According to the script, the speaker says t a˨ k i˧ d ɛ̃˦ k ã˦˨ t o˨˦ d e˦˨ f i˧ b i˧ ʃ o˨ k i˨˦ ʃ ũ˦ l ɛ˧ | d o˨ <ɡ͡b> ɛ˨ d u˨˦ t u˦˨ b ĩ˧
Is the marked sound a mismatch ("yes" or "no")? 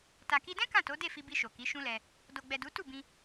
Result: no